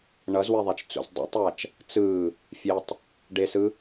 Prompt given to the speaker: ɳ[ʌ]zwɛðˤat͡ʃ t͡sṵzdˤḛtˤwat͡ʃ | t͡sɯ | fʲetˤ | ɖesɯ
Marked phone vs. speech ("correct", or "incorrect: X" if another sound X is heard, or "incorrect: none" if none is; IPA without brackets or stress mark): correct